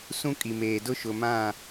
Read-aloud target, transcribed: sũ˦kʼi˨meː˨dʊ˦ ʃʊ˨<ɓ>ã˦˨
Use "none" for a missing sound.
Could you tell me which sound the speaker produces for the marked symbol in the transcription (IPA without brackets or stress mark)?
m